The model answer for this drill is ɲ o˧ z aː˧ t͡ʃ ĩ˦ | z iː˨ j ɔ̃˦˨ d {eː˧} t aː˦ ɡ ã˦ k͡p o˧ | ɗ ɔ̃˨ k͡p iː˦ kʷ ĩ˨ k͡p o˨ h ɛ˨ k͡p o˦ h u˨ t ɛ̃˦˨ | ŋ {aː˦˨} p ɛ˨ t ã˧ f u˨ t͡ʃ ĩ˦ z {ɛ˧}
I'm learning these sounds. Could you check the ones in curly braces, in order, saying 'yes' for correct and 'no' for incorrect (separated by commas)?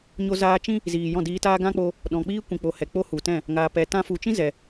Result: no, no, no